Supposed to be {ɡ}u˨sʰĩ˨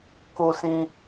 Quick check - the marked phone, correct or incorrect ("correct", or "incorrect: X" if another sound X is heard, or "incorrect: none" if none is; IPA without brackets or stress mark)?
incorrect: k